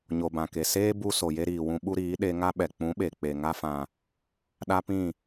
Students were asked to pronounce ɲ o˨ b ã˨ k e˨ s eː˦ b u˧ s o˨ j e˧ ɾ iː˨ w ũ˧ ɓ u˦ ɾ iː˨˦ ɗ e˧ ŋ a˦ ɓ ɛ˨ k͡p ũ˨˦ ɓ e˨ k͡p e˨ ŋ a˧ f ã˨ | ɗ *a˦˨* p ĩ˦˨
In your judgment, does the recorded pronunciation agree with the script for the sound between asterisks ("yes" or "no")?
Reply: no